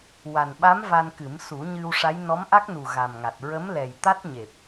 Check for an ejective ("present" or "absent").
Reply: absent